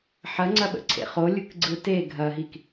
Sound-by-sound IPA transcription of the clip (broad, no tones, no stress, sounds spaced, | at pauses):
ħ ɐ ŋ͡ǀ ɐ ɓ ə̰ ǀʰ ḛ χ o lʲ ɯ k ɡ͡ǀ ɯ t e ɡʱ ɐ ɦ i k